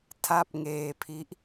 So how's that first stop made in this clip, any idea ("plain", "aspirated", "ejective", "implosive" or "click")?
aspirated